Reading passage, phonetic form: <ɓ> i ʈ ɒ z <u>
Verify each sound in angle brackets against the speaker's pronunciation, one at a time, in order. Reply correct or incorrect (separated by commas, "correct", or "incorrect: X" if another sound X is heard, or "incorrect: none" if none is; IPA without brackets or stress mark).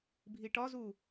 incorrect: bʱ, correct